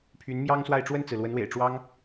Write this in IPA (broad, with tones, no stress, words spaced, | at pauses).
pʰy˧˥n mjɑ˥ŋswa˥˧ɪ̯ ʈ͡ʂwə˥˩nt͡sɹ̩˩lwə˧˥nwḛ˨˩ɪ̯ ʈ͡ʂwɑ˥ŋ